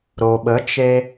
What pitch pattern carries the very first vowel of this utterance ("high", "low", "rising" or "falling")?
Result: low